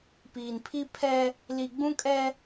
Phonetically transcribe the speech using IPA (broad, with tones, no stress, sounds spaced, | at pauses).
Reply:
p iː˨ n pʰ i˦ pʰ ɛ˦ | l i˨ ɡ͡b ũ˦ kʼ ɛ˦